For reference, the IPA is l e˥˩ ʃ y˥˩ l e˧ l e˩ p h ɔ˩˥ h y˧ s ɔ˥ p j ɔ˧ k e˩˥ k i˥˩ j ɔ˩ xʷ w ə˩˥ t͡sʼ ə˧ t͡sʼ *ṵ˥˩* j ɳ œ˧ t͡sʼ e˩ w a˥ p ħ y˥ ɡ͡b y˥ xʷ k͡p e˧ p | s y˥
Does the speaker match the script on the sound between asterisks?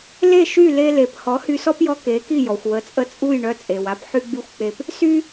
no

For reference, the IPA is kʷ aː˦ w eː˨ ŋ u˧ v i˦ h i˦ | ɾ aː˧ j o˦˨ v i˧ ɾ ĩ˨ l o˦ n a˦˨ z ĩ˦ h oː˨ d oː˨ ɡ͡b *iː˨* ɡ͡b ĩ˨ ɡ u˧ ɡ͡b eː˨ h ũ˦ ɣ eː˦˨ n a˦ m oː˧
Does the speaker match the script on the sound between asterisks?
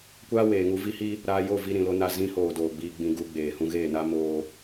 no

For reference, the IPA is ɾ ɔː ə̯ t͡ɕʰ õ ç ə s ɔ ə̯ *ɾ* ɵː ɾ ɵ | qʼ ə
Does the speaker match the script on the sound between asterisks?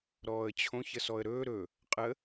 yes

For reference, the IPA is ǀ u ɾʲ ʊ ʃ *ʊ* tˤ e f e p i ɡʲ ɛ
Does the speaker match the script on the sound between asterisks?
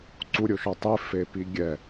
no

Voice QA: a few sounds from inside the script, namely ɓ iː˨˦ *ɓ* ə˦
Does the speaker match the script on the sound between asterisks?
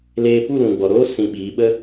yes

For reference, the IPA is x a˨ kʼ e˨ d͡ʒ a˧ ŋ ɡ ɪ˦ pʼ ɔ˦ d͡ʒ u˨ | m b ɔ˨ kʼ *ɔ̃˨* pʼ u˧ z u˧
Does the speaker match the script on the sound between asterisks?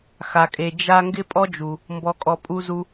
no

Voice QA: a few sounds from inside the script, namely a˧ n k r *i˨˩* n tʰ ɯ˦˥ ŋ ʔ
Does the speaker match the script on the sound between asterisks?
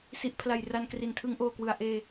yes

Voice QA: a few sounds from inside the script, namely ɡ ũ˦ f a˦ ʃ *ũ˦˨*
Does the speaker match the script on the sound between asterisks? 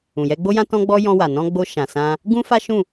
yes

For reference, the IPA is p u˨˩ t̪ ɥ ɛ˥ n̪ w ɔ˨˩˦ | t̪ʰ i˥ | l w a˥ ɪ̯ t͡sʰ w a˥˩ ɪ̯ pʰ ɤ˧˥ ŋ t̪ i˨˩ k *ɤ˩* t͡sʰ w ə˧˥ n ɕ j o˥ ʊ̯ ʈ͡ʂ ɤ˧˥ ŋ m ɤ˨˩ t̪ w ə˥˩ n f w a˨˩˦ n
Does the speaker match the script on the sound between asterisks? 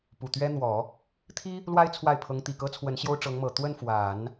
no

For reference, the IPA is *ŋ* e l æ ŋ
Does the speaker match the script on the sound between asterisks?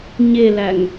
no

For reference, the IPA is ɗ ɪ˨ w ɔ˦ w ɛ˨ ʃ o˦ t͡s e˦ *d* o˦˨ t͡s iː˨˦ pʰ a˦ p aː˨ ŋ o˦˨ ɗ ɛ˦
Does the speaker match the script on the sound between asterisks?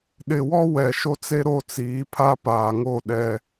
no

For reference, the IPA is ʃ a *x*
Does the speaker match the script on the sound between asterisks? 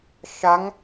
no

